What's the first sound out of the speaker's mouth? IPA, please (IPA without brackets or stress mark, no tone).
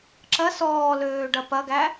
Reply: ǁ